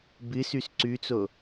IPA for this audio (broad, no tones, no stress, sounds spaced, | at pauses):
b ɨ s ʉ s ǀ ʉ t͡s o